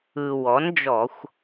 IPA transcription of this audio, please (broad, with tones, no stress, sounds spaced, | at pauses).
ɯ˩ w ɔ˩˥ n d͡ʒ ɔ˧˩˧ xʷ